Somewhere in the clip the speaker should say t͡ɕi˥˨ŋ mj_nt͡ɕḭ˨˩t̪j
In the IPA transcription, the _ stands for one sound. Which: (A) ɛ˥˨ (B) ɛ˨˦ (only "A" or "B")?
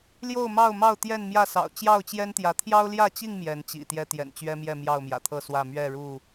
B